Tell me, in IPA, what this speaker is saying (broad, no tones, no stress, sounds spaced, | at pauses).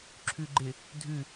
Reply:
ǁʰ ʉ ɡ͡ǃ ɪ | dʱ ʉ